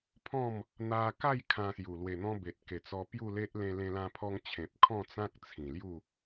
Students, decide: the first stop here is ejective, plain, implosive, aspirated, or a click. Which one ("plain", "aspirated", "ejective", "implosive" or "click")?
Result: aspirated